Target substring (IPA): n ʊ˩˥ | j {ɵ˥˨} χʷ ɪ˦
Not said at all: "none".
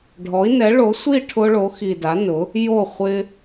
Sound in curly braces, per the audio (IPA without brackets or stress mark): o˥˨